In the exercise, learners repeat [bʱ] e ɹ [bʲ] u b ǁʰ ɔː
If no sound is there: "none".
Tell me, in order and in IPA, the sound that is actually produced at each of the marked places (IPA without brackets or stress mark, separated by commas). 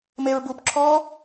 m, b